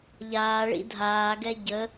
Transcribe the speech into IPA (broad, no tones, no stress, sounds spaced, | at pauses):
ʎ aː ɭ ḭ dʱ aː ɡ ɛ ɟ ə